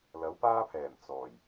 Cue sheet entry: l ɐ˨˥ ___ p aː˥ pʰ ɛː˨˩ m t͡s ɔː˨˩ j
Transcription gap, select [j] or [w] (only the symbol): w